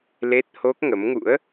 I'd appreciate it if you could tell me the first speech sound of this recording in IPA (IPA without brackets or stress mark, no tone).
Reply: l